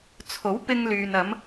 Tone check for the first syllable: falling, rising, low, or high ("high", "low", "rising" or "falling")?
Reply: rising